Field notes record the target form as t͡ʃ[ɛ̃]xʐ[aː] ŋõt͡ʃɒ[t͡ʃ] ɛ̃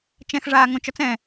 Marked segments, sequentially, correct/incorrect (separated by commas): correct, correct, incorrect